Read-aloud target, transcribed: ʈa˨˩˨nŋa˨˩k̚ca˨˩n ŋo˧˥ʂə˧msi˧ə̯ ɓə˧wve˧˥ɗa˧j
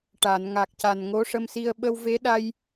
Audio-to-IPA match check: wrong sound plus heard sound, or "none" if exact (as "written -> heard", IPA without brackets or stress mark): none